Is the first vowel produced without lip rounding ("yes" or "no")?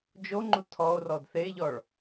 no